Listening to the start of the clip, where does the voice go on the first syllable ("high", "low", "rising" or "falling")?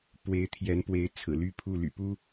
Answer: rising